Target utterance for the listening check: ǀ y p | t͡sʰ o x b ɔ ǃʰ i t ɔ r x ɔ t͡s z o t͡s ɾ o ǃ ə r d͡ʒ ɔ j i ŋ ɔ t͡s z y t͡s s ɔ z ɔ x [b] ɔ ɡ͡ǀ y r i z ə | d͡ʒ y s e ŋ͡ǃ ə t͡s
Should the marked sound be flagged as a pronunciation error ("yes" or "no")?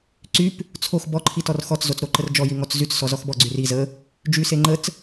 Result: no